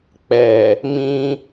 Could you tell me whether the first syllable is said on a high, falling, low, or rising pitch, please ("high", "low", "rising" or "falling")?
low